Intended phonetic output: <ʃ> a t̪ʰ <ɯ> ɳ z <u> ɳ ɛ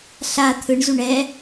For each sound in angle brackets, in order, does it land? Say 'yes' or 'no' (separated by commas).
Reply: no, yes, yes